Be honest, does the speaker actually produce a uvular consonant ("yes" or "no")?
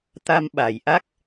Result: no